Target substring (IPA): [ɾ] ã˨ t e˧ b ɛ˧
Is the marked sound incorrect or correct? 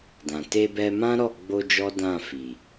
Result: incorrect: d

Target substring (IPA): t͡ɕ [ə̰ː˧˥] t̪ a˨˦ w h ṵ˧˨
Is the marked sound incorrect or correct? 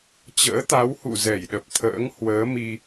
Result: correct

